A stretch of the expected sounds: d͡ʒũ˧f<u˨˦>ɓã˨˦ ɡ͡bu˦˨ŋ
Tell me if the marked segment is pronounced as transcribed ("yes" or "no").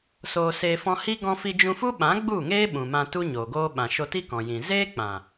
no